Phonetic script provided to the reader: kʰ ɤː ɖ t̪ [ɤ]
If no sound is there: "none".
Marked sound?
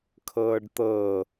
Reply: ɤ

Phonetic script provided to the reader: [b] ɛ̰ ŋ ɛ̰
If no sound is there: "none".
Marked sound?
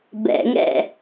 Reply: b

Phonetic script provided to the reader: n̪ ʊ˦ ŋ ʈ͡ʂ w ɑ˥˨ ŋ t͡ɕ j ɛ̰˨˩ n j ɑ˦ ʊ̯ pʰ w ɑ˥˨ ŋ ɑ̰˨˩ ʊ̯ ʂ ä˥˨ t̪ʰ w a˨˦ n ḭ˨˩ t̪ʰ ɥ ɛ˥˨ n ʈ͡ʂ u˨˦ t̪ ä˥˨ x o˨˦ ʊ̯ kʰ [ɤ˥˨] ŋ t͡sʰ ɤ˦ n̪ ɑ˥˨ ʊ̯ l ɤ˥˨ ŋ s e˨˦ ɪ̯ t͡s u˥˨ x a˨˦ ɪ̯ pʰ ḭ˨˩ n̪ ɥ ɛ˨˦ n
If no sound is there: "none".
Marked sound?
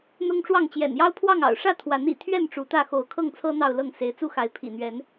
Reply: ɤ˥˨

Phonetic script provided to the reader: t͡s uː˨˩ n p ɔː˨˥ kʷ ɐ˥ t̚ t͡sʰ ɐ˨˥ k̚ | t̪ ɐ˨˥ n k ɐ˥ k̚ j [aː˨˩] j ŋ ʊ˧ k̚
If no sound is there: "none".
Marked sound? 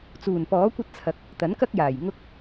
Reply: aː˨˩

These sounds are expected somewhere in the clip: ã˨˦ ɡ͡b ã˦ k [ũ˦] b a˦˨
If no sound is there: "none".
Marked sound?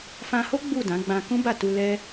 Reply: ũ˦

